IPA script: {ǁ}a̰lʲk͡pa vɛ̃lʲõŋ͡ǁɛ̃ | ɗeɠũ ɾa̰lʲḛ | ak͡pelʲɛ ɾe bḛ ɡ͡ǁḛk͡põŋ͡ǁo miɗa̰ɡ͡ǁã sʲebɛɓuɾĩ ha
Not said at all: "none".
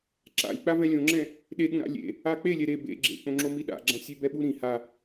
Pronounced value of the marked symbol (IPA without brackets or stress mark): ǁ